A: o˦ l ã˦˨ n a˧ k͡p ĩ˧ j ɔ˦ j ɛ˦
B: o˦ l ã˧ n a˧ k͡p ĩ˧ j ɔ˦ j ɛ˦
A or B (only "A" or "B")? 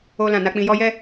A